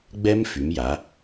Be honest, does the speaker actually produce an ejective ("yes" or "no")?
no